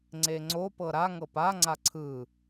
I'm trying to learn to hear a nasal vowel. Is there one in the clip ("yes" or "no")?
no